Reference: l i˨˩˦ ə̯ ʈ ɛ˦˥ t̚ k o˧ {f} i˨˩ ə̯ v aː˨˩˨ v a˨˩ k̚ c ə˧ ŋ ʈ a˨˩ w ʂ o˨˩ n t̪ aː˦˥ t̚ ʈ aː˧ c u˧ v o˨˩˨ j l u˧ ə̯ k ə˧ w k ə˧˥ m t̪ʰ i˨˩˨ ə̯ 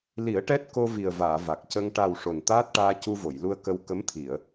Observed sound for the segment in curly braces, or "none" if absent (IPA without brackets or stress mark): v